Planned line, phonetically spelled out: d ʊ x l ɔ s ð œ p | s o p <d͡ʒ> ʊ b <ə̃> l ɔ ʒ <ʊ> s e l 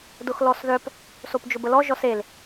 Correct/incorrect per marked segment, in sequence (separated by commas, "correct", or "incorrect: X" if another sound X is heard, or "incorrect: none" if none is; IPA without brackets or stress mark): correct, incorrect: ə, incorrect: ɔ